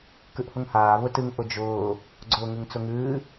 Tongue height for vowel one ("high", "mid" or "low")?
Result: high